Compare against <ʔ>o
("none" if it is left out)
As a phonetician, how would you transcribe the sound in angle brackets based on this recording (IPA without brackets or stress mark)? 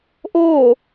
ʔ